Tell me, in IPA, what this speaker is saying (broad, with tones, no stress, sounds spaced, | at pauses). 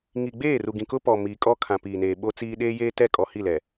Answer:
ŋ i˨ ɡ͡b eː˦˨ r u˨ ɡ ĩ˨ k ʊ˦ p ɔ˨ m iː˨ kʼ ɔ˦ kʰ ã˨ p iː˨ n eː˨ ɓ o˦ t͡s iː˦ ɗ eː˦ j eː˦ t ɛ˦˨ kʼ ɔ˨ h i˦˨ l ɛ˨